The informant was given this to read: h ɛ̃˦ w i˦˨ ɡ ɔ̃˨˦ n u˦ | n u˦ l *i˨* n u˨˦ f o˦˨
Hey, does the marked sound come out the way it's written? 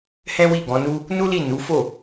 no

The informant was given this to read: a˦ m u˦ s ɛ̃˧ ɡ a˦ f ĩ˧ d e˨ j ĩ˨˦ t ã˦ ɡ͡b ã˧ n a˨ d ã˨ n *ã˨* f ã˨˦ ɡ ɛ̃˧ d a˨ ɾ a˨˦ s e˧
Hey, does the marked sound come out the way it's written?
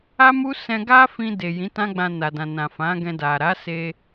yes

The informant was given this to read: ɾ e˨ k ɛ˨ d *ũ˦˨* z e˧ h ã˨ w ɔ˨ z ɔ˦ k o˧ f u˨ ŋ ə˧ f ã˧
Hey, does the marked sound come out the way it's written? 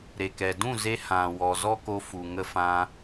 yes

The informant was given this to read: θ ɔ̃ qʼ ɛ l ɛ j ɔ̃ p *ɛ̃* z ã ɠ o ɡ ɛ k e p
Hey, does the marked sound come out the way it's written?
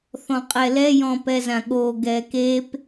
no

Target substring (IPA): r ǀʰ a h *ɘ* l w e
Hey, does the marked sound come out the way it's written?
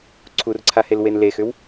no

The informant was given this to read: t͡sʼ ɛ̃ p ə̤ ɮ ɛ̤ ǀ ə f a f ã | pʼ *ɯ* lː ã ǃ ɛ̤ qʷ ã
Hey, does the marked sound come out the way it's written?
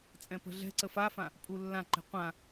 no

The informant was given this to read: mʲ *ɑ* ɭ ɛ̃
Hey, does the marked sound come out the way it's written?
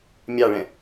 yes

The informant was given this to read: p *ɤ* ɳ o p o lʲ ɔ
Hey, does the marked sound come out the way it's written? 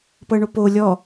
yes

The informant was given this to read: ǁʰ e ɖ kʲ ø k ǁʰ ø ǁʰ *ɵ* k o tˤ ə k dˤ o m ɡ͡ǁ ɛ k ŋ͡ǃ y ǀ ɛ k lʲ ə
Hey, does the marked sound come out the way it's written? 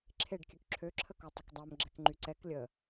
no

